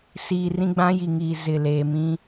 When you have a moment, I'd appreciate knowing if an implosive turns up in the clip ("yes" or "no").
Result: no